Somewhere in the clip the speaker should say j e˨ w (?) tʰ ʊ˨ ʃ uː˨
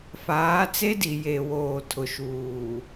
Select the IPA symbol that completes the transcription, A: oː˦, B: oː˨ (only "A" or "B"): B